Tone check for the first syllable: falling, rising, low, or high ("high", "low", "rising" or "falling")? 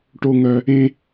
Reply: high